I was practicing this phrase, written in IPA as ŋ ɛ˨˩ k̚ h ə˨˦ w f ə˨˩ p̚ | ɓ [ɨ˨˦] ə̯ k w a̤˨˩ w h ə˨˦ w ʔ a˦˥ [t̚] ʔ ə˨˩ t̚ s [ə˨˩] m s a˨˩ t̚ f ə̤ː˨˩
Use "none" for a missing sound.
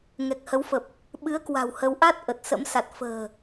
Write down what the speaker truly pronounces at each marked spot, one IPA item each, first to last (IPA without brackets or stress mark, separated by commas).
ɨ˨˦, t̚, ə̰˧˥